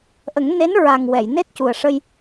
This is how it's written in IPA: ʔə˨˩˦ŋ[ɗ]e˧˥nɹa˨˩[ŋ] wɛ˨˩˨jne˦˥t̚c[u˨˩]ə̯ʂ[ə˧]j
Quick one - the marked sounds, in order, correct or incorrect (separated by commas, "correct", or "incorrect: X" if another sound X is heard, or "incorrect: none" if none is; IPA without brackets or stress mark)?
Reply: incorrect: n, correct, correct, correct